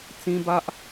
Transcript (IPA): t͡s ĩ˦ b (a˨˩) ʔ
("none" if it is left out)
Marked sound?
a˦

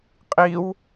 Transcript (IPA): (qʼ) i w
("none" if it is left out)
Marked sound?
qʼ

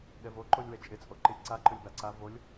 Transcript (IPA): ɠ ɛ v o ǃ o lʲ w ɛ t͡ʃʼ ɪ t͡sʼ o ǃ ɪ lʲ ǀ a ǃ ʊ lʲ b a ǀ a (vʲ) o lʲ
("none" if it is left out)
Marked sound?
v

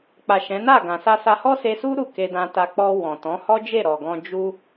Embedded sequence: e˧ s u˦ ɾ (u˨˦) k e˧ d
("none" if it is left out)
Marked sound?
u˦˨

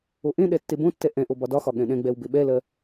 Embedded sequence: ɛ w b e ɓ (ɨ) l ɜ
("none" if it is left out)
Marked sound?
ɛ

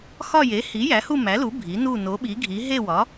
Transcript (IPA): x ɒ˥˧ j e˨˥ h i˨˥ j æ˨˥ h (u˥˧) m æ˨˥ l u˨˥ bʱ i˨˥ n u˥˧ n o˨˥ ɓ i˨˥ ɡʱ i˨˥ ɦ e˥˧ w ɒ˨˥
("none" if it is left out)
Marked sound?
u˥˧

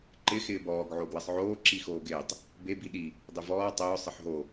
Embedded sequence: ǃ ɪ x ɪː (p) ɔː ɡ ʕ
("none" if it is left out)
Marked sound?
b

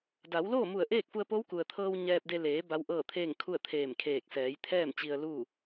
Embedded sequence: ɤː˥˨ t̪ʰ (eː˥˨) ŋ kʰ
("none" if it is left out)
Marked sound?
eː˥˨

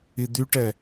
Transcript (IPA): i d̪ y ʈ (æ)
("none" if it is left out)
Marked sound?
ɛ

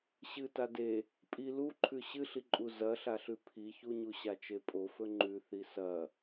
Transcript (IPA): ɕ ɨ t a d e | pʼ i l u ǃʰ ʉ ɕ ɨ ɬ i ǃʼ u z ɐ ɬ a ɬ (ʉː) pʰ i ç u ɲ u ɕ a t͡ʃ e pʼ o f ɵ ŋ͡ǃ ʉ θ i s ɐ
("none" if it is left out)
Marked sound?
ʉ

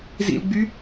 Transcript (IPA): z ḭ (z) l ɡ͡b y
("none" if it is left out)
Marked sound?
none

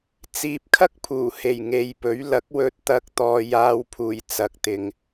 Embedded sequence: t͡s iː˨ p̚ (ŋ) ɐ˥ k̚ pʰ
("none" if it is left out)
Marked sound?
kʰ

